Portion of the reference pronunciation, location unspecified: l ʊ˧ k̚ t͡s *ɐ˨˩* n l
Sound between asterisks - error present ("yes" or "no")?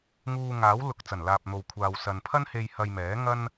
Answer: no